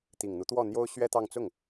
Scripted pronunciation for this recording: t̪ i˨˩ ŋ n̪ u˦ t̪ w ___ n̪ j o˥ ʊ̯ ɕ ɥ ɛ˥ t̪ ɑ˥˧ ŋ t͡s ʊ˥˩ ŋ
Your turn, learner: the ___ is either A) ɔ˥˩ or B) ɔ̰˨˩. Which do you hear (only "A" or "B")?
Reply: A